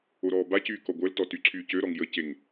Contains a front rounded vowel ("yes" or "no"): yes